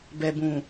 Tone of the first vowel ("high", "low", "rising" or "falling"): low